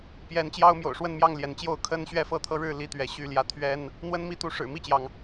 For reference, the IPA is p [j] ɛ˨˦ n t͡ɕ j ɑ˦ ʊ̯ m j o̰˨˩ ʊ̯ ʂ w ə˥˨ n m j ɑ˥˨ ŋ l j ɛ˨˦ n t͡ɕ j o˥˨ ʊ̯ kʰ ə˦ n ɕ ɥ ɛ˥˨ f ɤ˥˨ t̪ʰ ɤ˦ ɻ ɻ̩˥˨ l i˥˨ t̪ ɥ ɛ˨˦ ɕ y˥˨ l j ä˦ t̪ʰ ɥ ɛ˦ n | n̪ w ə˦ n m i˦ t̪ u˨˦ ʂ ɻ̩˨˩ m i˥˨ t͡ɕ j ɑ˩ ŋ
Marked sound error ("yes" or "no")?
no